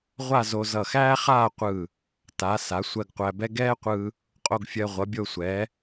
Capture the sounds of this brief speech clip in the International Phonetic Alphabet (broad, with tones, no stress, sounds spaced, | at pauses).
ʁʷ a˥˧ z o˧ z ʌ˧˩ x æː˥ χ aː˥˧ qʷ ɯː˧˩ | t a˩˧ s a˩˧ sʷ ɜ˧ ɡ qʷ æ˧ b ɛ˥ ɡ ɛː˥ qʷ ɯː˧ | qʼ o˧ ɡ fʲ ɜ˧ ʁʷ ʌ˩˧ bʲ o˧ sʷ ɛː˩˧